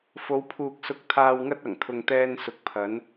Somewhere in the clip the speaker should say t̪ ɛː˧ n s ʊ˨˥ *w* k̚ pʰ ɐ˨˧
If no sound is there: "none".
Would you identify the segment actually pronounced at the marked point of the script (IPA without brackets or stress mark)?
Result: none